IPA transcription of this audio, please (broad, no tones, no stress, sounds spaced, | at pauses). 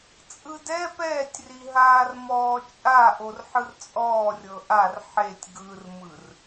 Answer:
t͡sʼ ɯ d ɛ p ɛː tʲ r i ɦ aː r m ɔː t͡ʃʼ a ʔ o r ħ ɯ r t͡sʼ ɔː rʲ ɤ ʔ a r ħ e tʲ ɡ ɯ r m ɯ r